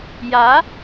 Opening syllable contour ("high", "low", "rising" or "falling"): rising